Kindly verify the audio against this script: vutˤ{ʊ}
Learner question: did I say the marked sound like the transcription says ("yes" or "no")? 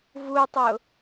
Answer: yes